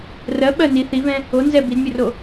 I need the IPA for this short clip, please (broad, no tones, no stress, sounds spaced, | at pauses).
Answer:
r ɜ ɓ ɜ n i θ i v ɛ̃ | o n z ɛ b i d mʲ o r o